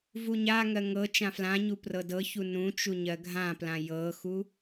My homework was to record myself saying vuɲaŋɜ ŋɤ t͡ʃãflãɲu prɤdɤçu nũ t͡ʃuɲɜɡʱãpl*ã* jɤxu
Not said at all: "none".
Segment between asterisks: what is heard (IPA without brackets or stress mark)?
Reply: ã